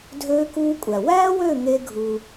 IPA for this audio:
dʱøː˦kuː˦kʷʼæ˨ wæː˦wø˦˨ ŋe˦ɡʱu˧

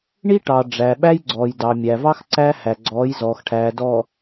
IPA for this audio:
ɳi˦ ʈɑ˨ ɖ͡ʐæ˨ɓæ˦j ɡ͡ǀɔː˨jdɑ˨mʲæ˨ vɑ˦x ǀæ˦hæ˨ɡ͡ǀɔː˨˦j zɔː˨xʈʰæː˨dɔ˨

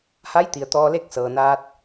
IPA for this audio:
ha˧˥jt̪i˩ə̯ t̪ɔː˧le˥˨k̚sɤː˩naː˧t̚

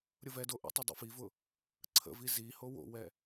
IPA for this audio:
ɾʲʊvɛdo ʔə̰tˤə dˤḭfivʊ | ǀʰə̰vi zi howo̰wɛ

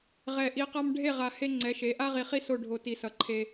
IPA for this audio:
ʁɛ˨ʔi˨qa˦m ɖʱe˦˨ʁa˨ he˦ŋ͡ǀɛ˨˦ʃe˨˦ ʔa˦ʁi˨χi˦ so˦˨ɖʱo˨ ti˨ sʌ˨ǃʰe˦

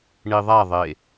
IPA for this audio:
ɳi ðˤa ðˤe

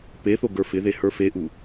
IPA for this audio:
peθo ɡə˞fɪðe hə˞feʔu

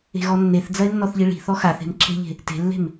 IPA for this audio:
e̤ɣɔnːeθd͡zɐɪ̯ nːɔθʎiɭi̤ θɔxaθe̤m ǁʰe̤ʎe̤ | te̤lːe̤m

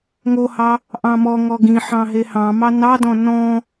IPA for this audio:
ŋohɑ | ʔɑ̃mɔŋɔ ɡĩħɑ̃ ɦehɑ̃mɑ nɑdɔ̃ nɔ̃

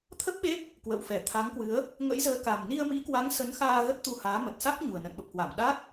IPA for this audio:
t̪ʰə˦˥p̚ɓe˦˥p̚ | kwə̰ː˧˨wfɛ˧˩t̪ʰa˨˦ŋkwɨ˨˦ə̯ | ŋə̰˧˥jzəː˨˦ka˨˩m ni˧ə̯mḭ˧˥kwa˨˦ŋ sə˨˦nxaː˧ ɣə˦˥t̚t̪u˧haː˨˦ mə˨˩t̚sa˦˥k̚ ɲu˨˩ə̯nə̰˧˨nɓə˨˩p̚kwa˧˩m ɗa˦˥t̚

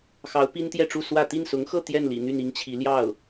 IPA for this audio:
xɑ˧˥ʊ̯ pi˥nt̪jɛ˥˧ʈ͡ʂu˥˧ swä˥˧ t̪i˥˩nsʊ˧˥ŋxɤ˥˧ t̪jɛ˥˩nlḭ˨˩ n̪y˥˩ni˥ŋt͡ɕʰi˧˥ ljɑ˥˩ʊ̯

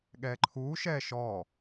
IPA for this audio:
ɠɛːǃʰuːʃɛː ʃɔ

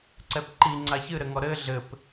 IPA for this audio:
ǀɛpǃiŋ͡ǀa çɨɾɘŋɔ ɾɘ ɮɘp

